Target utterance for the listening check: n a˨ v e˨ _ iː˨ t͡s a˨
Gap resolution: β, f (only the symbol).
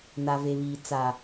β